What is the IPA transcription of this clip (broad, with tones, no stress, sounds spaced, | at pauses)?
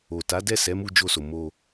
o˨ t a˨˦ d ɛ˦˨ s ɛ˨˦ m u˧ d͡ʒ o˧ s o˨ m o˧